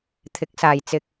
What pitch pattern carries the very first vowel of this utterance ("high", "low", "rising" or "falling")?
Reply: rising